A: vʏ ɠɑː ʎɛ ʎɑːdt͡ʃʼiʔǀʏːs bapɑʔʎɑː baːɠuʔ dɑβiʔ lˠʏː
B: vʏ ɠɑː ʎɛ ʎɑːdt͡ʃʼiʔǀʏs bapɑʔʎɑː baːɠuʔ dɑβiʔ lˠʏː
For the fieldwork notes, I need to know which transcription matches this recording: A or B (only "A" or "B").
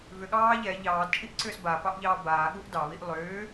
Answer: A